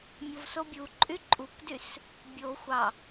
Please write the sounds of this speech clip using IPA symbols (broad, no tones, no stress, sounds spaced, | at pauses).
mʲ o v s o bʲ u ǃʼ y ǃʼ u k d y s | bʲ o xʷ ɑ